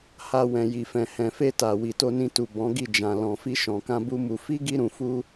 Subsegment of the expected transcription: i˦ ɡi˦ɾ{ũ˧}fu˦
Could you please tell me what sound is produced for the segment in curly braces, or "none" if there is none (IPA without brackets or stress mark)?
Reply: ũ˧